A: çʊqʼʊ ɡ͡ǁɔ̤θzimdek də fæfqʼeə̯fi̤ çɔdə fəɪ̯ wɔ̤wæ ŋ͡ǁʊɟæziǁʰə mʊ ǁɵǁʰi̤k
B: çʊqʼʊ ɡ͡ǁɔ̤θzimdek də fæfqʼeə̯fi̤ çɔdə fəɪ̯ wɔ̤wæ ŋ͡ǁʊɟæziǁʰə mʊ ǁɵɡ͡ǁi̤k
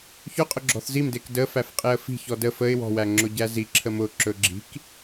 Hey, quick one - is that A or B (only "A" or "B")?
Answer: B